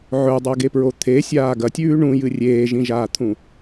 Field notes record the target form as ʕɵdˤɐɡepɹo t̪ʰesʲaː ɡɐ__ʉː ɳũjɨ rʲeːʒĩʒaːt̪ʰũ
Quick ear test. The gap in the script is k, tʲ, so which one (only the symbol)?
tʲ